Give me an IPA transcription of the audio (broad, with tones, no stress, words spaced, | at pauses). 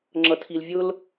ŋ͡ǁʌ˨tʰi˨lvʲʊ˦l